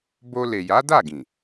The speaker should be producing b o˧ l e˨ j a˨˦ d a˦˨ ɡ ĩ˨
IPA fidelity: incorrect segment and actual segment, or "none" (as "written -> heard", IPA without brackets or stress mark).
none